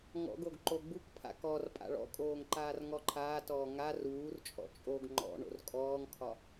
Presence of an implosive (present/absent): absent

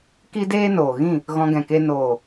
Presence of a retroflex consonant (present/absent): absent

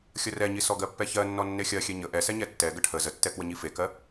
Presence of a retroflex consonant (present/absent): present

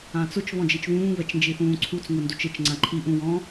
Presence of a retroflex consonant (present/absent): absent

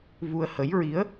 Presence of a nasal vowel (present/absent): absent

